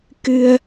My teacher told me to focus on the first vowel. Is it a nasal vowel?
no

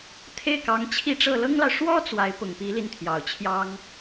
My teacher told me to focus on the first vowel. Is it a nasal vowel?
no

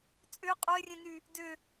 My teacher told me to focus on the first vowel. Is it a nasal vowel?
no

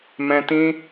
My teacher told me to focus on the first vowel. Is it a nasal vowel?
yes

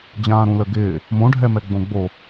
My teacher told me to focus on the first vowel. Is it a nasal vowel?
yes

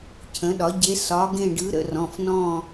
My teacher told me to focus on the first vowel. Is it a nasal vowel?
yes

